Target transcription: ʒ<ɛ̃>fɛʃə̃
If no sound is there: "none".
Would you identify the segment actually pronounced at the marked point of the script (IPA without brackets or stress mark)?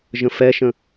ə̃